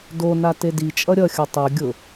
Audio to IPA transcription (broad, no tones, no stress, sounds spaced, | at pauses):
d o n a t e d i t͡ʃʼ ʌ ɾʲ ʌ xʲ ʌ tˤ o ɡʲ ʊ